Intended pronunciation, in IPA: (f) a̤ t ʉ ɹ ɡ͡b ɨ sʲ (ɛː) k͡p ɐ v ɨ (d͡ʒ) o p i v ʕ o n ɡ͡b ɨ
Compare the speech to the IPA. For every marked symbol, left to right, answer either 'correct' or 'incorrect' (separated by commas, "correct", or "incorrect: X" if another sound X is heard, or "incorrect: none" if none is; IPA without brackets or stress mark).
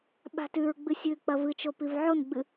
incorrect: ɓ, incorrect: ɨː, incorrect: t͡ʃ